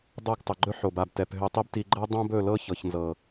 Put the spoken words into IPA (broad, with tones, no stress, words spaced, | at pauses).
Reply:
dˤɤ˦˨ɡ tˤɵ˨ɡ͡ǃɵ˦ħo˨ba˨b tɛ˨p ɦø˧tˤi˦bti˧ ɡ͡ǃɤ˦dˤõ˦bɵ˦˨ lɤ˦ çɤ˨çnzɤ˨